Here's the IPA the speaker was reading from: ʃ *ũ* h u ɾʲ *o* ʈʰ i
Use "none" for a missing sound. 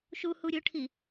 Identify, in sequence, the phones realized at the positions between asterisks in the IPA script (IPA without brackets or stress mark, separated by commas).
u, o